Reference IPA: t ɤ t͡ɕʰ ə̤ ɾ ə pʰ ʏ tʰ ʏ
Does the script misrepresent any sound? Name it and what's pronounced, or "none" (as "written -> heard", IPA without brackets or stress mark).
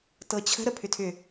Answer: none